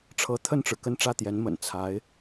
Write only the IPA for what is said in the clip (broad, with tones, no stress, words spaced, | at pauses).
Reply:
ʈ͡ʂʰɤ˧˥ t̪ʰə˥˩nʈ͡ʂɻ̩˩kə˥˧n ʈ͡ʂä˥˩t̪jɛ˧˥nmə̰˨˩n t͡sʰa˧˥ɪ̯